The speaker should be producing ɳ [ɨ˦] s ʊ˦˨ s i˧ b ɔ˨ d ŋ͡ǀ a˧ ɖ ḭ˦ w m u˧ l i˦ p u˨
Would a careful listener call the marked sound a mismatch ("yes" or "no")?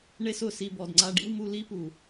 yes